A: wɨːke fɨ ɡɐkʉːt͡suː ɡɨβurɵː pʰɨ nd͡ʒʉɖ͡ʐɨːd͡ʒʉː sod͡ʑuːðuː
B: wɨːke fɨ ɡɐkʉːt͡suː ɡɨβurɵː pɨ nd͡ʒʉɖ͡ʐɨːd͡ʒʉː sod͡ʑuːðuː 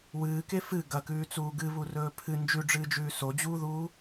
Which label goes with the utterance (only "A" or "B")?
A